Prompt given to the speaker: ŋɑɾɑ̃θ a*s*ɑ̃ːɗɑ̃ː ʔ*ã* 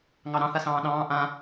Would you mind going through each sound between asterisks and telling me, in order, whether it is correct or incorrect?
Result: correct, correct

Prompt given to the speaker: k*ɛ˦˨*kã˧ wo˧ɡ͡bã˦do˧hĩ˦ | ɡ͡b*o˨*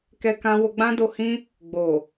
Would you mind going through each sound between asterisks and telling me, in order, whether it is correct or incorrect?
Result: incorrect, correct

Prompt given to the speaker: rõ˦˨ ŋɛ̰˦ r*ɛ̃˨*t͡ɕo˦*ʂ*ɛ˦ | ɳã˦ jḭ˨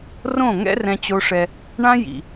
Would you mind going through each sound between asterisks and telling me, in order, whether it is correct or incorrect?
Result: incorrect, correct

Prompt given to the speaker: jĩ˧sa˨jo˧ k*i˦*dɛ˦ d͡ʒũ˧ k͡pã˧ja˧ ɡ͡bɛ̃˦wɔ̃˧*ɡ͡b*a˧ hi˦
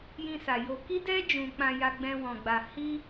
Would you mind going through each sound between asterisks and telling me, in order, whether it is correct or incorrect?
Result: correct, correct

